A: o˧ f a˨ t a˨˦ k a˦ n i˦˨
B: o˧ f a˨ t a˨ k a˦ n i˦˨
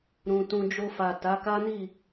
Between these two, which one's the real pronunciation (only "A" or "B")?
A